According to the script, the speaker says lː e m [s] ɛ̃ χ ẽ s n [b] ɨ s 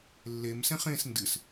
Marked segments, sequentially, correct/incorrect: correct, incorrect

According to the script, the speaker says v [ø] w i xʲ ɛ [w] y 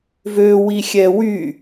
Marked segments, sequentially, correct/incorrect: correct, correct

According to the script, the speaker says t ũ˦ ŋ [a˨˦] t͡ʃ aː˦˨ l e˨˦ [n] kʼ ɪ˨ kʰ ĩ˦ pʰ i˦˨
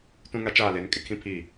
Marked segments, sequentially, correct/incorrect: incorrect, correct

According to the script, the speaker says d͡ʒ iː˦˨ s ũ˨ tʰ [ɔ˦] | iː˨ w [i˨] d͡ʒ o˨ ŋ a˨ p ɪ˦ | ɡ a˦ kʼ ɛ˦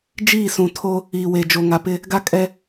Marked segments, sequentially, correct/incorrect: incorrect, incorrect

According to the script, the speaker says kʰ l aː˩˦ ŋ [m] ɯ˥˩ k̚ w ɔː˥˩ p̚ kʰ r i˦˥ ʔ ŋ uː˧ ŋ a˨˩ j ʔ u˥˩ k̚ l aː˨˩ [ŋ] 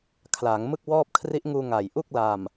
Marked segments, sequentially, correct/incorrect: correct, incorrect

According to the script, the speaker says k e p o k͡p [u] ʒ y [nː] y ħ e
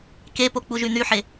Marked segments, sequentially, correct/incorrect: correct, incorrect

